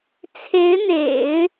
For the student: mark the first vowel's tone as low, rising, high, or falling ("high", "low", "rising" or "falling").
rising